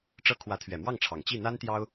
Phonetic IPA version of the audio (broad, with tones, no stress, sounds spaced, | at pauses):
ʈ͡ʂ ɤ˥˩ kʰ w ä˧˥ t̪ʰ ɥ ɛ˨˩ m w ɑ˥˩ ŋ ʈ͡ʂʰ ɑ˨˩ ŋ t͡ɕ i˥˩ n̪ a˥ n t̪ j ɑ˥ ʊ̯